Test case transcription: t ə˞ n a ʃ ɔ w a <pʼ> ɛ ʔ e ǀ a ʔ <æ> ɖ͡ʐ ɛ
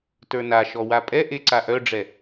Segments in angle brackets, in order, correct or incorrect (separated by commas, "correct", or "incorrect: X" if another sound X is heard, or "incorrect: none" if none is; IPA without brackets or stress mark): correct, incorrect: œ